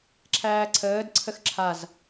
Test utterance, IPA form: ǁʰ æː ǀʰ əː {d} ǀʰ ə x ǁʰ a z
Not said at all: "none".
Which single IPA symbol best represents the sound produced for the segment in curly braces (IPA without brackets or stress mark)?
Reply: d